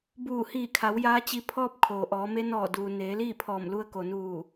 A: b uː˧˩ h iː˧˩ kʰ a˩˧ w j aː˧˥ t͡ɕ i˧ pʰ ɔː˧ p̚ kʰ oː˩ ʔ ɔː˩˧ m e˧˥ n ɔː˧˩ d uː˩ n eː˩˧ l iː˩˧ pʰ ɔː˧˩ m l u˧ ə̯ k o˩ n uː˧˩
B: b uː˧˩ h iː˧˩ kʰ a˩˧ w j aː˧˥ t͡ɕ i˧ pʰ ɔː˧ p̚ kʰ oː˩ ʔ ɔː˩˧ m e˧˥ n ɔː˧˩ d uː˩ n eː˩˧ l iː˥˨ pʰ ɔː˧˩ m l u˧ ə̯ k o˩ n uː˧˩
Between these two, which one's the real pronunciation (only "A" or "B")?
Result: B